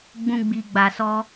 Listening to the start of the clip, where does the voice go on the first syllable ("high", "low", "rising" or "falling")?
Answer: high